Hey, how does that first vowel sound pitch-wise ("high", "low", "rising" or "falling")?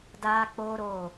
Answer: high